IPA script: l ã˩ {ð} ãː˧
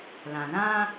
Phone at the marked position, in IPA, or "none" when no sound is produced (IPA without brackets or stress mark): ð